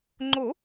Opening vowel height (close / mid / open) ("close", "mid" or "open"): mid